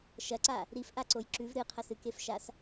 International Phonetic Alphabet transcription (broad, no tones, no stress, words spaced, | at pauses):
ʃɐǀa | ɾifʔaǀoj ǁʉv ɾɨqʰɐs ɨkefʃas